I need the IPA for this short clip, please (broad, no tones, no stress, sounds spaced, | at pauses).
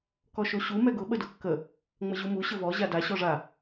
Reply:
k ɔ ʃ o ɕ u m ɛ ɡ ʊ ɓ ə d ʊ kː ə | ŋ͡m ə ʑ u m u ɕ ə v ɔ ʑ a d a ɕ ɔ ʐ a